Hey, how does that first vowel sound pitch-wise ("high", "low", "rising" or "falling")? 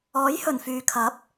rising